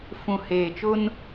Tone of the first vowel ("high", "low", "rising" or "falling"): low